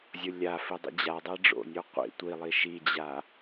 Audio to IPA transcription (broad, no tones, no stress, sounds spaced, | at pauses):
zʲ ʊ lʲ a f i dˤ ḭ d͡ʑ a dˤ a ɖ͡ʐ o̰ nʲ o qʷ ḭ tʷ i lˠ i ʃ i d͡ʑ a